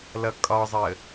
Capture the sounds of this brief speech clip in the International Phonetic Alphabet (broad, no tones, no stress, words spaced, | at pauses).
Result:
lʌkʼɒzˤəː